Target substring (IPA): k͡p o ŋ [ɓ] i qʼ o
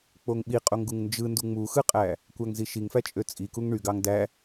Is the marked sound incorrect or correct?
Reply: correct